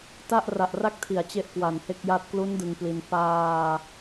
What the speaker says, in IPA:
t a˥˩ ʔ r a˨˩ ʔ r a˥˩ k̚ tʰ i˩˦ a̯ t͡ɕ e˥˩ ʔ k w a˨˩ n h e˥˩ k̚ j a˥˩ t̚ k l u˦˥ n d ɯ˧ ŋ p l i˧ n p aː˧

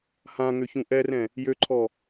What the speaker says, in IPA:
h ã ŋ ø ç ũ ʔ ɛ r ɛ̃ | j ø ǃʰ ɔ

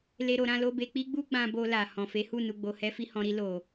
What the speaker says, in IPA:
l e˦ ɾ o˧ ɾ ã˦ l o˦ b e˧ k͡p i˦ ɡ͡b u˦ ɡ͡b ã˧ b o˧ l a˨ h ɔ̃˨ f e˨˦ h u˦˨ n u˨ ɡ͡b o˨ h ɛ˧ f i˧ h ɔ̃˨ ɾ i˧ l o˨

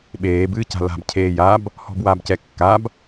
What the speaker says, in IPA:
ɓ eː b ɨː c a̤ l a̤ b cʰ eː j a b | h ɔ̤ b w aː b c ɛ kː a b

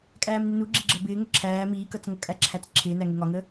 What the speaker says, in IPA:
kʼ æː m n ɪ n u ɡ͡ǁ i ɡ͡ǁ ə b ɪː ŋ ə ǁʰ æː m iː k ʌ t͡s ŋ ʌ kʼ æ ǁʰ æ t͡s ǁʰ ɪː n æ ŋ ɪ ŋ ɒ ŋ ə

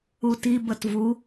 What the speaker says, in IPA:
u t i b ə t v u

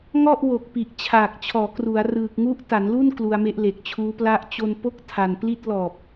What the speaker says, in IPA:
ŋ ɔ˥˩ ʔ w o˨˩ k̚ p i˨˩ ʔ t͡ɕʰ aː˨˩ k̚ t͡ɕʰ ɔː˩˦ k r u˩˦ a̯ r ɯː˨˩ k̚ ŋ u˦˥ ʔ t a˩˦ n l u˥˩ n k l u˧ a̯ m e˦˥ ʔ l e˨˩ k̚ t͡ɕʰ uː˦˥ p l a˦˥ ʔ t͡ɕ o˧ n p o˥˩ k̚ tʰ a˨˩ n p l i˥˩ t̚ l ɔː˨˩ p̚

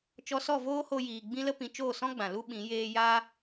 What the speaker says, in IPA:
t͡ʃ ɔ˧ s ɔ˦˨ v oː˦ h o˧ j iː˨ ɡ͡b ĩ˦ l ə˦ p ĩ˧ t͡ʃ oː˦˨ s ɔ̃˦ ɡ͡b ã˨ l u˦ ɓ ĩ˨˦ j eː˦ j aː˦

